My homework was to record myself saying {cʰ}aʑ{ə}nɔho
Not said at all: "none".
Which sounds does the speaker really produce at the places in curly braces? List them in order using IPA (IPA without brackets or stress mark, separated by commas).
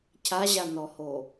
cʰ, a